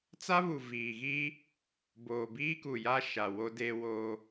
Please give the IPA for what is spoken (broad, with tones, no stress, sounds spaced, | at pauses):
t͡s a˦ β u˨ v iː˨ ɣ i˦ | b oː˨ b iː˦ k u˨ j a˦ ʃ a˨ w o˦ d e˦ w o˦